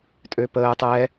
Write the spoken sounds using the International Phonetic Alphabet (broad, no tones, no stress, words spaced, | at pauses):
tʼøpəː tˤɛ